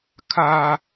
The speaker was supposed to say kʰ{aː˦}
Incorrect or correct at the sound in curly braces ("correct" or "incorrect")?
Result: correct